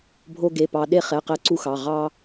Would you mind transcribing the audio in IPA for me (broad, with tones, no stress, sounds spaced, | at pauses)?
bʱ o˧ ɡ e˩˧˩ p ɑ˧ ɗ e˧ χ ɛ˩˧˩ q ɛ˧ ǀ u˧ x ɑ˩˧˩ ʁ ɑ˧